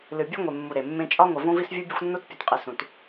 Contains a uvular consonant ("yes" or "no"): yes